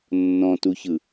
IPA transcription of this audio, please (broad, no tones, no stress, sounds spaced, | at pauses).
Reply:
nː ɔ̃ t u ç ɯ